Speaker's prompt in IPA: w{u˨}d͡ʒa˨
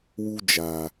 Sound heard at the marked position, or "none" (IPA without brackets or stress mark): u˦